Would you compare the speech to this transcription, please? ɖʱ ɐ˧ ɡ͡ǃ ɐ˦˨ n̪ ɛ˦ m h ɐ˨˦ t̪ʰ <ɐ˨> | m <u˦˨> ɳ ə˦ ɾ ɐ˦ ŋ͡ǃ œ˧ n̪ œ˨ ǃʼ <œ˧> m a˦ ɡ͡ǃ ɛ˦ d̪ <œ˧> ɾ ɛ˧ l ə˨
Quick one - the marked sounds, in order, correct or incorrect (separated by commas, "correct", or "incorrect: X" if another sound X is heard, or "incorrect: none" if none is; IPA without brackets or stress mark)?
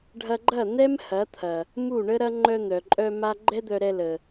correct, correct, correct, correct